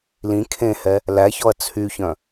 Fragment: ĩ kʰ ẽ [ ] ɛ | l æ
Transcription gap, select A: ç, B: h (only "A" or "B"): B